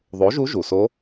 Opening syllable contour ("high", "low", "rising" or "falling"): rising